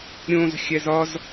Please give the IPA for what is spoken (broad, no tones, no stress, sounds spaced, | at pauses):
ɾʲ õ z xʲ æ z ɒ z